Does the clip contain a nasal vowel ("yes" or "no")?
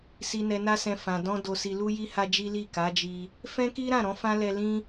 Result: yes